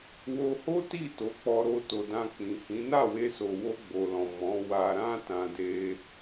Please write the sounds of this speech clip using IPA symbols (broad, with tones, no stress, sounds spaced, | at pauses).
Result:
w o˧ h o˦ t i˦˨ t o˨˦ k͡p ɔ˧ ɾ o˧ t o˨ d ã˧ k͡p ĩ˨ h ĩ˨˦ n a˦˨ w e˧ s o˨ w o˧ ɡ͡b o˨ l ɔ̃˨ m ɔ̃˨˦ w a˧ ɾ ã˦ t ã˧ d e˧